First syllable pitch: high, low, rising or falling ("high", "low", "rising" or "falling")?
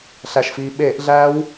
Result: low